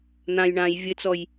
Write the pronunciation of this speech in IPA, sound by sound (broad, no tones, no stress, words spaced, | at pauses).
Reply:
n̪ãj ɳãj vʲɘt͡sɔj